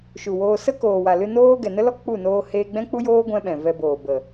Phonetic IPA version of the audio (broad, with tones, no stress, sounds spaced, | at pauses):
ʃ u˨ w oː˧ s ə˦ k oː˨ w a˨ l ɨ˧ n oː˦ ɡ ɛ˨ n ə˦ l ɔ˦ k͡p u˦˨ n oː˧ h eː˧ ɡ͡b ɛ̃˦ k͡p u˦ j oː˦ ɡʷ ɛ̃˦ ɓ ɛ̃˨ v ɛ˧ b oː˨ b ə˨